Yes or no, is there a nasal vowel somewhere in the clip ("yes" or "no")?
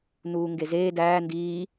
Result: no